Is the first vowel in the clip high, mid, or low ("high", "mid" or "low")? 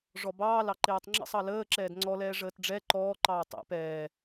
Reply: mid